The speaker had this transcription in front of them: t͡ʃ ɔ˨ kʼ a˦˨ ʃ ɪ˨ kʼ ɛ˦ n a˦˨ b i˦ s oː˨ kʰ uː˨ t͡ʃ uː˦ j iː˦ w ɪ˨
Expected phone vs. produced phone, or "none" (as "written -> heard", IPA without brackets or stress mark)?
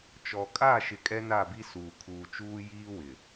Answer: oː˨ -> uː˨